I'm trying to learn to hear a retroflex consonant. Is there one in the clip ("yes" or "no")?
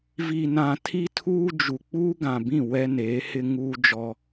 no